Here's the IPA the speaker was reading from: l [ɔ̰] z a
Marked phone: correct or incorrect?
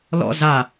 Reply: correct